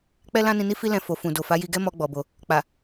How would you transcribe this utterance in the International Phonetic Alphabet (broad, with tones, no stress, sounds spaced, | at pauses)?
k͡p ɛ˦ l ã˦ n ĩ˧ n i˦ f i˦ l ɛ̃˧ f o˨ f ũ˨ d o˨ f a˨˦ j i˧ ɡ ɛ˦ m ɔ˦ ɡ͡b ɔ˧ b o˧ | k͡p a˨